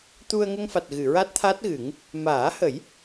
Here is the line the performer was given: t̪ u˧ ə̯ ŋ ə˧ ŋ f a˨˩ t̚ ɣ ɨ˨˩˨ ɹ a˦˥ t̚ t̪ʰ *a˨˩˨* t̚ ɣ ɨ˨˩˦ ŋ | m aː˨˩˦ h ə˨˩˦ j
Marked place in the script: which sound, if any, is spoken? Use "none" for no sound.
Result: a˦˥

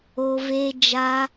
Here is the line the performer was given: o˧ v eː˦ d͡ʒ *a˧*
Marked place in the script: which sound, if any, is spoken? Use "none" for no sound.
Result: a˧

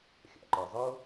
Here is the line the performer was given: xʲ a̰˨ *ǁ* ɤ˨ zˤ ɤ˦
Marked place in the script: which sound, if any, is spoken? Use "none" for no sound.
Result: ǃ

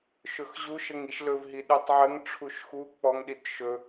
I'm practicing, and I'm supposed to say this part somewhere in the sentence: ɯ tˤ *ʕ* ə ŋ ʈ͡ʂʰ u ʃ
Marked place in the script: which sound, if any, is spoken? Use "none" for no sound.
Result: ʕ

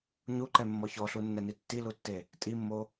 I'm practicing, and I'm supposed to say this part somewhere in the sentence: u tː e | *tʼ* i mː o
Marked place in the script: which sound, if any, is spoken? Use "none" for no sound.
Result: tʼ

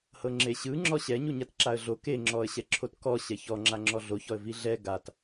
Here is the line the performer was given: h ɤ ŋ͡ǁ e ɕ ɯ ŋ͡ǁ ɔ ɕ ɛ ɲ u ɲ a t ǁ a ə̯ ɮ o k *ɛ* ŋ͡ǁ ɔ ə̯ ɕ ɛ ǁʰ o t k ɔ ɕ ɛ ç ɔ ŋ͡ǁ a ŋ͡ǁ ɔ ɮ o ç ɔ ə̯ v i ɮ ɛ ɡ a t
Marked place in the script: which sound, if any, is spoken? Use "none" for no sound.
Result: e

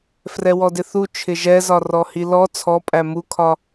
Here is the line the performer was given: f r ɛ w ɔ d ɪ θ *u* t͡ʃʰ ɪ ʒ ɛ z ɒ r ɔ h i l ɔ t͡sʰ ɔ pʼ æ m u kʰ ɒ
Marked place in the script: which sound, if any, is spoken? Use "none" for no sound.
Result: u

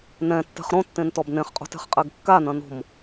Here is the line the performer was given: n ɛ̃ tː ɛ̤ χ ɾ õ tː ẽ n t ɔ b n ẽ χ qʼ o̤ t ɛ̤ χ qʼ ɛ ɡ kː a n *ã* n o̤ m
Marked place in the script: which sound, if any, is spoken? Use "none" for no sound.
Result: ɐ̃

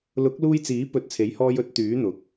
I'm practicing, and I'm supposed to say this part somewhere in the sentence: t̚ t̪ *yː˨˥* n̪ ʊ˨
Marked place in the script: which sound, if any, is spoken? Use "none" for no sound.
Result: yː˨˥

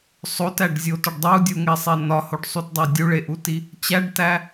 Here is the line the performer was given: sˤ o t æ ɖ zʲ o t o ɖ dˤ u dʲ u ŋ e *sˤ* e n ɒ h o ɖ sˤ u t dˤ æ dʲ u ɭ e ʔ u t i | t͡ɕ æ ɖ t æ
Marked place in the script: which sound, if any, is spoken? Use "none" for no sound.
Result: sˤ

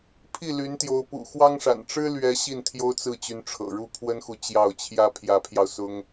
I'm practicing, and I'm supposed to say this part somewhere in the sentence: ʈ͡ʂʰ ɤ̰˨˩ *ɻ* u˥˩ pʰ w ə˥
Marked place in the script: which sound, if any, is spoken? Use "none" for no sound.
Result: ɻ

